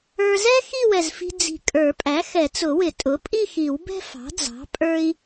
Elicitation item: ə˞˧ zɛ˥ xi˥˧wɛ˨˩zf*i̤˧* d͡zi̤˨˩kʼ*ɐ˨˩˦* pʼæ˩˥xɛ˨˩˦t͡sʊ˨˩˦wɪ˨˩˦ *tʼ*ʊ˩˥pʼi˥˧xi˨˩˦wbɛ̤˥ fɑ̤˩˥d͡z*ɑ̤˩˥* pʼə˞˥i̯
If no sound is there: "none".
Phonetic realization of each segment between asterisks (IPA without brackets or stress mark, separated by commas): i̤˧, ə˞˨˩˦, tʼ, ɑ̤˩˥